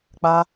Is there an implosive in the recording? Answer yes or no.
no